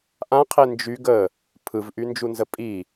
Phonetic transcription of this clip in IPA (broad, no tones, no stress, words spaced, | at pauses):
ʔãqʰe nd͡ʒyɡ ə | pʰɯvʔynd͡ʒunzə pʼi